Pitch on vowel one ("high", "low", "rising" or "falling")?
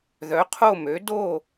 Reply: rising